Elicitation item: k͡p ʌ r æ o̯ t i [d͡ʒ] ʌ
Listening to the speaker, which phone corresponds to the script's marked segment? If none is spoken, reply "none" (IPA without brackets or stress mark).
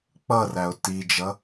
d͡ʒ